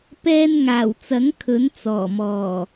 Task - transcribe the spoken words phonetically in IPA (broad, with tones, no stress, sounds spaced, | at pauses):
p ɛː˧ n ŋ aː˨˩ w t͡s ɐ˨˥ ŋ kʰ ɵ˨˥ n t͡s ɔː˨˩ m ɔː˨˩